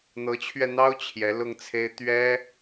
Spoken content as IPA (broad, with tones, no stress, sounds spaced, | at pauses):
n̪ ɤ˧˥ t͡ɕʰ ɥ ɛ˧ n̪ ɑ˥ ʊ̯ t͡ɕʰ j ɛ˧˥ l ʊ˥˩ ŋ t͡sʰ e˥ ɪ̯ t̪ ɥ ɛ˥